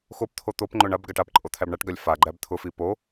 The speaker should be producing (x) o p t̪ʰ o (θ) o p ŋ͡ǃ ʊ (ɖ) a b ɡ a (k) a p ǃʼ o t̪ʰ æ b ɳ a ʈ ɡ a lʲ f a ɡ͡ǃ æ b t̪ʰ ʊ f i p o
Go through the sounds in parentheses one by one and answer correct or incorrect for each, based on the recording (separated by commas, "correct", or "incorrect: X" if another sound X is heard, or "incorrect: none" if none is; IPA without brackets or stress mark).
correct, incorrect: t̪, incorrect: ɳ, incorrect: ʈ